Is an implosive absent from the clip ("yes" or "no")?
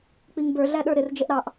no